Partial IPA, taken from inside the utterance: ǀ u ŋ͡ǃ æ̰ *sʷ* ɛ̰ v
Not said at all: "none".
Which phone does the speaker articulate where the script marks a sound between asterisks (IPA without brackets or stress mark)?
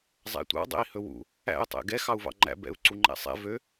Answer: sˤ